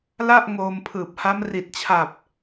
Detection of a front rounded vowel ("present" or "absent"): absent